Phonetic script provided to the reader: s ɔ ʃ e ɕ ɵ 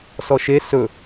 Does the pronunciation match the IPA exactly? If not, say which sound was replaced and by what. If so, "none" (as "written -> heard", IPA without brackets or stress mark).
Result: ɕ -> s